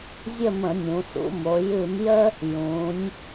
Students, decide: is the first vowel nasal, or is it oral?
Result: oral